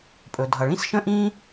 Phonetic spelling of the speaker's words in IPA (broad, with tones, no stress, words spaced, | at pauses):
pʼɵ˩dʱʌ˩ ɭĩ˥sʃə̃˥ʔĩː˥